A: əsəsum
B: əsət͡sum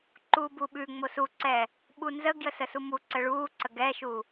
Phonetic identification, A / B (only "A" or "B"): A